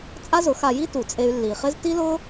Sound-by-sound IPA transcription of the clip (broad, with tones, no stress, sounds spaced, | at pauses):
t͡sʼ a˥ z ʊ˩˥ x a˧ j i˥ t u˩ t͡sʼ e˧ y̯ lː i˩ χ ɪ˥ z t i˥ l ʊ˥